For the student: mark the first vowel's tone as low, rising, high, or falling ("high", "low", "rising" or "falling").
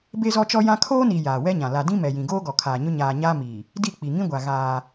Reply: high